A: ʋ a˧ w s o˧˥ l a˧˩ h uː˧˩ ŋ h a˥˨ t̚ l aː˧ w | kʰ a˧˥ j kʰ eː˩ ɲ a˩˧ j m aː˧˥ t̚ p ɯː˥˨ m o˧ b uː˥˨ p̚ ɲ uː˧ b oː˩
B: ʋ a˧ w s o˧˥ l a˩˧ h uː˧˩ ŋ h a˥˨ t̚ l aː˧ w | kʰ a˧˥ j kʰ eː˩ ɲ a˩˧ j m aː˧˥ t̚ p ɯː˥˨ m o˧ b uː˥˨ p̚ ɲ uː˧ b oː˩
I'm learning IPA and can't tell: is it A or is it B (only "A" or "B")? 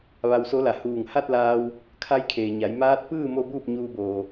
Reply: B